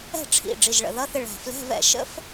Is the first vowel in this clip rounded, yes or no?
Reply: no